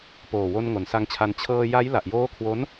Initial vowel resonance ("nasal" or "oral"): oral